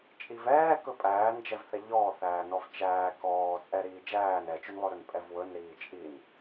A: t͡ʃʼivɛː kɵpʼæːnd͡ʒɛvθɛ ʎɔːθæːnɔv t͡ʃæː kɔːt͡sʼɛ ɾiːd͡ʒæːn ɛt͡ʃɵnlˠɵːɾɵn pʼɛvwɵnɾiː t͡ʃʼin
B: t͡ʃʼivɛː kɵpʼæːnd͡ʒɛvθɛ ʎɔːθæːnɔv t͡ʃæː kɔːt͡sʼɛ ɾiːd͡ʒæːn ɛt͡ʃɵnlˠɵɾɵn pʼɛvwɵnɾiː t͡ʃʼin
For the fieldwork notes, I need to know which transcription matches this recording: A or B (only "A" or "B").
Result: B